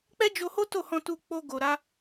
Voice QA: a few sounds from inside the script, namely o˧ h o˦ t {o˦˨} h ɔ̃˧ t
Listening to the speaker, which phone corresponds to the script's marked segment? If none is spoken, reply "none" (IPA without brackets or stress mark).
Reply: o˦˨